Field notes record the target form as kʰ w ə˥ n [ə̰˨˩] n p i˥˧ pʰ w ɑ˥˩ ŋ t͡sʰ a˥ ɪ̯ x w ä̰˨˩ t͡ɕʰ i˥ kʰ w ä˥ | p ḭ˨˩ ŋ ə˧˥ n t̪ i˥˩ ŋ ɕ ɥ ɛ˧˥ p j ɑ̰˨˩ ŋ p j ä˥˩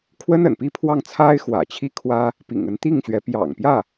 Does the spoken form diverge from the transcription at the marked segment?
no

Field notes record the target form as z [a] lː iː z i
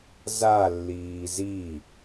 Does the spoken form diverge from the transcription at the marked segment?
no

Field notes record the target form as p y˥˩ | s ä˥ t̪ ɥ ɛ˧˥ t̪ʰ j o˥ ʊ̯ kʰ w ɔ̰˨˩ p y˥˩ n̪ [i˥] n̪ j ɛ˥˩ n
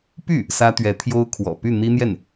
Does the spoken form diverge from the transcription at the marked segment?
no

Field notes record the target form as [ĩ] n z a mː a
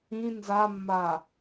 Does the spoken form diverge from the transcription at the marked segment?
no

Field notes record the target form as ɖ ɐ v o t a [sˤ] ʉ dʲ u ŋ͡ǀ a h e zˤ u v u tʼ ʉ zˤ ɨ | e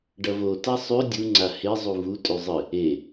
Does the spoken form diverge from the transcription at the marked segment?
no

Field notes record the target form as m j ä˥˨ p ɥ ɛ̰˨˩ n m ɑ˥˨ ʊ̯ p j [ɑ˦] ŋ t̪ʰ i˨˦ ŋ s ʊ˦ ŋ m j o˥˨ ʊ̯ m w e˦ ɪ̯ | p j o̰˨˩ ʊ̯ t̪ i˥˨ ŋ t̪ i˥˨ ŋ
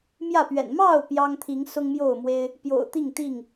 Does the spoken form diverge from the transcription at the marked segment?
no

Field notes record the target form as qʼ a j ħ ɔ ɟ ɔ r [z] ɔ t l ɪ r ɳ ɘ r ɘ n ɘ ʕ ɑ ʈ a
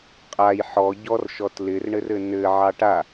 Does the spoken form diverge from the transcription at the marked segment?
yes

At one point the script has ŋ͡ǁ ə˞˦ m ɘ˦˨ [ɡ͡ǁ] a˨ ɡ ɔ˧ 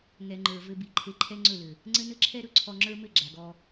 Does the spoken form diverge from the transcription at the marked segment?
no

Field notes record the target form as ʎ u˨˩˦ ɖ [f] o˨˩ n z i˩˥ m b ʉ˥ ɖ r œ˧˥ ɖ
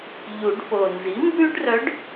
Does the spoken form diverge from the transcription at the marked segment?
no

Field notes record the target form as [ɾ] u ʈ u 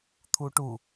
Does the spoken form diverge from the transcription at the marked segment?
yes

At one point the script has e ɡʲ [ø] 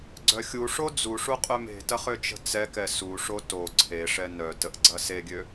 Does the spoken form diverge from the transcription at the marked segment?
no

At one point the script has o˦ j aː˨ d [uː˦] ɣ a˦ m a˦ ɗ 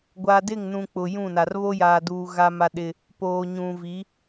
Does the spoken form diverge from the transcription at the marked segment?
yes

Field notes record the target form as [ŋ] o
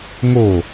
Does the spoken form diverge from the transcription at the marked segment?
no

